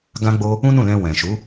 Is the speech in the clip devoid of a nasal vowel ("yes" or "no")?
no